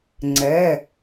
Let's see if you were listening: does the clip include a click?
yes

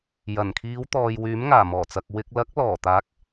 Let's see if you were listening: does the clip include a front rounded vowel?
yes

